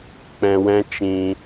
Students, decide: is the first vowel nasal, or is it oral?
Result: nasal